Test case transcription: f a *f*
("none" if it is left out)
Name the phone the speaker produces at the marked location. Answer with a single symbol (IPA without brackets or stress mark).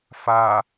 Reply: none